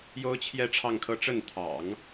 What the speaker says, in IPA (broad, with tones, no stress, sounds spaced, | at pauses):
j o˥ ʊ̯ t͡ɕʰ j ɛ˥˧ ʈ͡ʂʰ ɑ˥˧ ŋ kʰ ɤ˥˧ ʈ͡ʂ ə˥˩ n t̪ʰ ɑ̰˨˩˦ ŋ